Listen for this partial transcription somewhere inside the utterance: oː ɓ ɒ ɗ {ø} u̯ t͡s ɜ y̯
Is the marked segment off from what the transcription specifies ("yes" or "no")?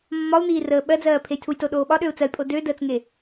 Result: no